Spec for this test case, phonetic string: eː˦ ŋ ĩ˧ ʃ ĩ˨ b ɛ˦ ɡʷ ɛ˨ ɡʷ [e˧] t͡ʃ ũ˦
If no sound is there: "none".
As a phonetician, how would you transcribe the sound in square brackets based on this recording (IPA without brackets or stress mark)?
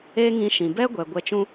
ɛ˧